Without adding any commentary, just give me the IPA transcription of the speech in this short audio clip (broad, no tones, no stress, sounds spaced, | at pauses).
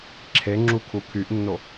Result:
ǁʰ e ŋ͡ǁ u kʰ u kʰ y ʔ nː o